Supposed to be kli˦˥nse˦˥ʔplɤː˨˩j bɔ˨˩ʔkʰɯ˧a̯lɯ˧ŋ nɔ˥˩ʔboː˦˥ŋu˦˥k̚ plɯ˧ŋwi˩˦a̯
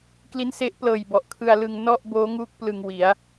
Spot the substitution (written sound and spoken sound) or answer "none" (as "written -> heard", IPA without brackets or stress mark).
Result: none